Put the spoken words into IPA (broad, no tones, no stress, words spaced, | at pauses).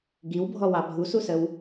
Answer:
ɡiwbʱɔwɑ bʱususəw